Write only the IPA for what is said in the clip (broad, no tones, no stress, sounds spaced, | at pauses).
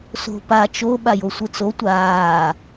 s o̤ p a t͡ʃ o ɓ a j o sʷ ɯ t͡s o tʷ aː